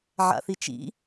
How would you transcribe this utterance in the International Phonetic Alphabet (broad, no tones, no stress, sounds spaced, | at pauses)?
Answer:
ʕ a̰ θ i t͡ʃ ḭ